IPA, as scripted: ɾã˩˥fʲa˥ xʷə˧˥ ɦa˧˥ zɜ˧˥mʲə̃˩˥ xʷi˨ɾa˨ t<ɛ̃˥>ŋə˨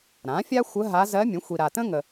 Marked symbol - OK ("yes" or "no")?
no